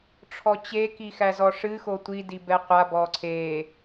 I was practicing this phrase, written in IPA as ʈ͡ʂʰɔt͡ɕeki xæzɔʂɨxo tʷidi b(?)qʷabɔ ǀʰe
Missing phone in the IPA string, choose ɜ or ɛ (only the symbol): ɛ